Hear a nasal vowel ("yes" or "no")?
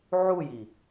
no